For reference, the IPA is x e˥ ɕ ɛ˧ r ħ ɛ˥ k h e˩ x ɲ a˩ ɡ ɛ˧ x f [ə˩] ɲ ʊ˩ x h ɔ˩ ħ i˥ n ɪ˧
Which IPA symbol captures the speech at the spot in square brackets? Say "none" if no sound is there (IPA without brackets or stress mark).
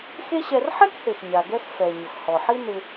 ɛ˩